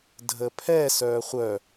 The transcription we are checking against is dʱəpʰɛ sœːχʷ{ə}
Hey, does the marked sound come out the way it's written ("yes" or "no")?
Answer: no